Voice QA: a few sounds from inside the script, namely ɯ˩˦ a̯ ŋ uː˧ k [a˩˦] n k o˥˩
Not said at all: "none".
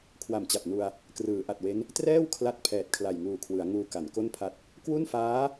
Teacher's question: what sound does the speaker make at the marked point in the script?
a˩˦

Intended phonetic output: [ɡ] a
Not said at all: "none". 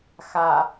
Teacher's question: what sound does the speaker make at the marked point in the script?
x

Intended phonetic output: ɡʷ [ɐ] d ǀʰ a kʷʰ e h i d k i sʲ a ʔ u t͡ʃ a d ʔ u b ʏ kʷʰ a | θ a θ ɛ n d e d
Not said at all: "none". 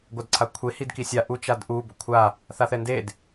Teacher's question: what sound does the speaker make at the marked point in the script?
a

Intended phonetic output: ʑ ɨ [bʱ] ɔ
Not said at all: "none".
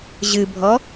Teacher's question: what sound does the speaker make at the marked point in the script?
bʱ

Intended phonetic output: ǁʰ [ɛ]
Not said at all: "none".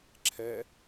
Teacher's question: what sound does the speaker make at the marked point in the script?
ɛ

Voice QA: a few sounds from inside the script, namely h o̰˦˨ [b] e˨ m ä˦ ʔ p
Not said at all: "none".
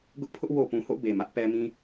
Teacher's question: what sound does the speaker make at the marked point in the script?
b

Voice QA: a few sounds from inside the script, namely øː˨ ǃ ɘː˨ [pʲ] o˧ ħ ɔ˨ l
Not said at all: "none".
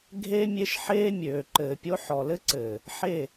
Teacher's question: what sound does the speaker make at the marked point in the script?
pʲ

